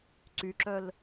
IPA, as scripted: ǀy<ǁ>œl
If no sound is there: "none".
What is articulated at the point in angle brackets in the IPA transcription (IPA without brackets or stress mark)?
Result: ǁ